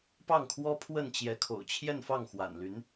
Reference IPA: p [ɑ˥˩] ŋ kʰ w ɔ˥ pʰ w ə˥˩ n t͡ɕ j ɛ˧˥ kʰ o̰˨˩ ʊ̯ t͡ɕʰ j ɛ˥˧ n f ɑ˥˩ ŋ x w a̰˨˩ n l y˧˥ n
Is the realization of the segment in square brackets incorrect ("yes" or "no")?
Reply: no